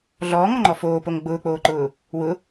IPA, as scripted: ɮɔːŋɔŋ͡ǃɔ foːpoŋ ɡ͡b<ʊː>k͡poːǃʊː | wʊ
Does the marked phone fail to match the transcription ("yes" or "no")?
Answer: no